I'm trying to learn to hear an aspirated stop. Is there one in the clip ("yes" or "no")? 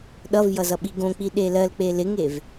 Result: no